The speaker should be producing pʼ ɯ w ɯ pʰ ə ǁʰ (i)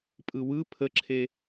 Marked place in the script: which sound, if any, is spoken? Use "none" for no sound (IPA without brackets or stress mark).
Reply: e